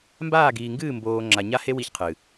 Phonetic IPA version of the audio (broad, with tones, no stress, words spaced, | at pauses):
mbaː˦˨ɡiː˨ŋɡɨː˦˨ mboː˨ ŋ͡ǁa˨ɲa˦he˦ wi˦çqʰɨ˨